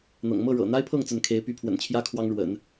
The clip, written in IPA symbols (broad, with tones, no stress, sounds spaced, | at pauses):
n̪ ɤ̰˨˩ ŋ m ɤ˥˩ ɻ ɤ̰˨˩ n̪ a˥ ɪ̯ pʰ ɤ˥˩ ŋ t͡s ə˧˥ n kʰ e˧˥ ɪ̯ p y˧˥ pʰ w ə̰˨˩ n t͡ɕʰ j ä˥ kʰ w ɑ˥ ŋ ɻ w ə̰˨˩˦ n